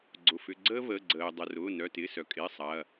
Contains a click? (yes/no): yes